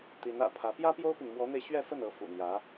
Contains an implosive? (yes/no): no